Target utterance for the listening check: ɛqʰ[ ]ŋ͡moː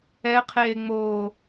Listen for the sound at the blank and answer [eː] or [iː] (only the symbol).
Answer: eː